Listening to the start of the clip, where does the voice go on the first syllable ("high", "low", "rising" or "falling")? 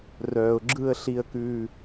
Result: low